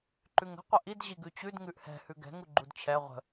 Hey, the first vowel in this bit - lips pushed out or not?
yes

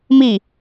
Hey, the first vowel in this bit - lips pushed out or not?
no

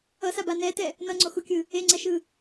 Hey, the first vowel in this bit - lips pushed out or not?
no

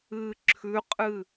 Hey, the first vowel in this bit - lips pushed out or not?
no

